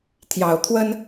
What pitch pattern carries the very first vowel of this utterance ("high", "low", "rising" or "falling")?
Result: low